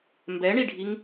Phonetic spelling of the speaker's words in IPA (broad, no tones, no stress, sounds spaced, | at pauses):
m b ɛ ɳ i ɖʱ i ŋ